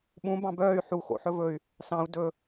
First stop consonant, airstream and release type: implosive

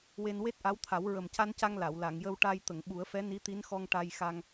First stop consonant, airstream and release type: plain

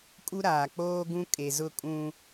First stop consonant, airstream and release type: ejective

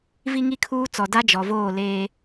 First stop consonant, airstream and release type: aspirated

